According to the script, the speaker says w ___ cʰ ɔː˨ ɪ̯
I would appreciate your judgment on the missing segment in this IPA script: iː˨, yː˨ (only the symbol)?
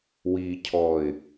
iː˨